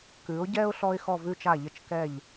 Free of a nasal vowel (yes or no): yes